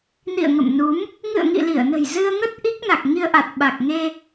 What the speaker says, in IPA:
n ḭ˧˨ ə̯ ŋ ə̰˧˨ m n u˨˦ m | ŋ ɨ̰˧˨ ə̯ ŋ ḭ˧˨ l i˧˩ ə̯ n ə̤˨˩ j z ɨ˧ ə̯ ŋ ə˦˥ t̚ ʔ i˦˥ k̚ n a˨˩ k̚ ŋ i˧ ə̯ ʔ a˨˩ t̚ ɓ a˨˩ k̚ ŋ e˧

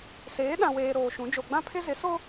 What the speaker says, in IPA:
s eː˨˦ ɗ ã˨ w eː˨ ɾ oː˨ ʃ ũ˨˦ d͡ʒ o˨ ɡ͡b ã˦ pʰ ɪ˦ z ɪ˨˦ s o˦

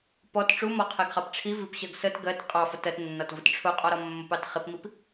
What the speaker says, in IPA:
p ɔ t ʈ͡ʂ u m ɔ qʰ ɛ ɡ χ ɑ p ʈ͡ʂʰ i v i p ɕ ɜ ɡ s ə t ɡ ɜ t qʼ ɑ f ə t ɜ t nː ɒ t v ʊ t ʈ͡ʂʰ ʊ qʼ ɔ ɾ ɒ mː ə p ɑ t χ ɪ p m i p

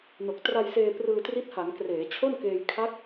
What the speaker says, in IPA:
n o˨˩ k̚ t r a˧ j s eː˧ p r ɯː˧ t r i˦˥ t̚ h a˩˦ ŋ k r eː˩˦ t͡ɕʰ o˥˩ n k eː˧ j kʰ a˦˥ k̚

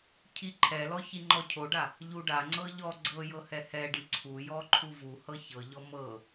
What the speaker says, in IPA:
cʰ i ǃʰ ɛ l ɔ ç i ŋ͡ǃ ɔ cʰ o ɖ a | ʎ u ɖ a ŋ͡ǀ ɤ ʎ ɔ ɡ͡ǀ ɤ j ɤ h ɛ h ɛ ɖ i ǀʰ u j ɔ ǃʰ u v u h ɤ ç ɤ ʎ ɔ m ɤ

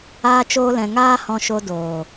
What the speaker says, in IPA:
aː˧ t͡ʃ oː˧ l ɛ̃˨ ŋ aː˦ h ɔ̃˧ ʃ o˧ d oː˨

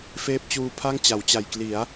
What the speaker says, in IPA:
f eː˦˥ p̚ t͡ɕ uː˧ pʰ a˥˩ ŋ t͡ɕ a˩˦ w t͡ɕ a˨˩ j k l i˩˦ a̯

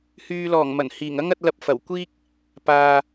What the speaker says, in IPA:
h yː˨ l ɔː˨˩ ŋ m ɐ˨˩ n h iː˨˩ ŋ ɐ˥ ŋ ɐ˨˥ t̚ l ɐ˧ p̚ f ɐ˨˩ w kʷ iː˥ k̚ | p aː˨

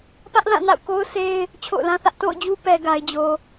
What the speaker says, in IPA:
p ä˦ ʔ l ã˦˨ n a̰˦˨ ʊ̯ k o˦ ʊ̯ s e˦ ɪ̯ | t͡ɕʰ o̰˦˨ ʊ̯ l ã˦ θ ä˦ ʔ t o̰˦˨ ʊ̯ d͡ʑ u˦ p ɛ˦ ɡ a˦ ɪ̯ d͡ʑ o˦

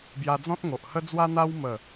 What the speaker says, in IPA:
b j a˧ d͡z ɔ̃˦ t̚ ŋ o˨ ʔ h ə˦ d͡z w a˦ n̪ a˦ w m ə˥˧

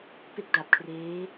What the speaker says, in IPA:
p e˥˩ k̚ d a˨˩ p̚ kʰ r eː˦˥

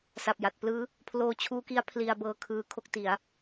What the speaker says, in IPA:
s a˨˩ p̚ j a˨˩ t̚ p l ɯː˦˥ | pʰ l oː˧ t͡ɕʰ uː˦˥ k i˦˥ a̯ pʰ l i˧ a̯ b ɤː˧ kʰ ɯː˧ kʰ o˥˩ k̚ t i˩˦ a̯

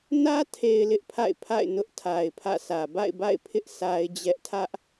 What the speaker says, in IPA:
n ä˦ tʰ e˨ ɪ̯ l ɪ˦ ʔ pʰ a̰˦˨ ɪ̯ pʰ a̰˦˨ ɪ̯ n ʊ˦ ʔ tʰ a˨ ɪ̯ pʰ ä̰˦˨ sʰ ä˨ b a̰˦˨ ɪ̯ b a̰˦˨ ɪ̯ pʰ ɪ˦ ʔ s a˦ ɪ̯ d͡ʑ ɛ˦ ʔ tʰ ä˦ ʔ

